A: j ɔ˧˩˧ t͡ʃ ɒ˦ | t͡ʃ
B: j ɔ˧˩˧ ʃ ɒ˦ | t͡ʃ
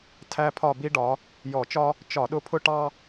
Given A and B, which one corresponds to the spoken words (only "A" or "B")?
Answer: A